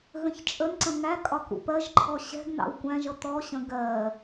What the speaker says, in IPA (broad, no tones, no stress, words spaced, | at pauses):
ɣə̃çt͡ʃʼənǀə̃ ŋæ kʼɒkṵpɜʒǃʰɔ ɕɛ̤ɡ nɑ̰wkʷæ̃ʒʌ t̪ɔɕə̃ ɡɜ